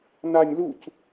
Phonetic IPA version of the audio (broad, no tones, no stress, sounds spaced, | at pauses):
n a nʲ l u c